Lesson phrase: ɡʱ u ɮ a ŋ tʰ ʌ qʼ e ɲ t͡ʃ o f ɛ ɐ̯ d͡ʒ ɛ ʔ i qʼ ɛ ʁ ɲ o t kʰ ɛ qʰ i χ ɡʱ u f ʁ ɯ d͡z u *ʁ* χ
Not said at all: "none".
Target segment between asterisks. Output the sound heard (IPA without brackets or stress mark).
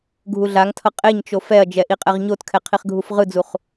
none